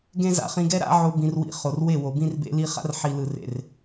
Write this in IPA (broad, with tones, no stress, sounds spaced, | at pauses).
ɡ ẽ˦ z a̰˧ χ ĩ˧ ɡ ɛ˦ ɾ a̰˦ ʕ o˧ b ĩ˧ r w ḭ˧ χ o˨ r w e˦˨ w o˨ b ĩ˦ r b ḛ˧ l i˧ χ a̰˦ r ħ i˨ l ɯ˨ r ḛ˨ r